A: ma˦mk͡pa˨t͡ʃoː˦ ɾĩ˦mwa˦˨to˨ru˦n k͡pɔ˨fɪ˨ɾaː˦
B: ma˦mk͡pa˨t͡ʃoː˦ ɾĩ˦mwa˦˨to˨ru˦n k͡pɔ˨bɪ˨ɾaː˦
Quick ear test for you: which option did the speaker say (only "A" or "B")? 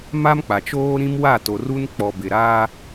B